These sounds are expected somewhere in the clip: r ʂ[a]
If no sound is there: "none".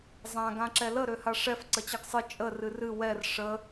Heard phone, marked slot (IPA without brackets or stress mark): ə